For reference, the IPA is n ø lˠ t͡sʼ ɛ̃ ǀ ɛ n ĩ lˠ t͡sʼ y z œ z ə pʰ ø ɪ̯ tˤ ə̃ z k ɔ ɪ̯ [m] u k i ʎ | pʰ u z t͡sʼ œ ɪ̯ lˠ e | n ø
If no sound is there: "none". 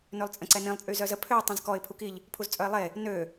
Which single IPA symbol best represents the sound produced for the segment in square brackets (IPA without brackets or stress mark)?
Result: pʰ